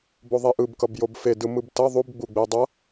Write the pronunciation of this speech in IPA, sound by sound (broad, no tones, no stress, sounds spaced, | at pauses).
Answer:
b o ðˤ e ʔ ɯ b k ʌ b j o b f e d ɯ m ɯ b t ʌ ðˤ u b ɡ͡b u ɡ͡b e dˤ ʌ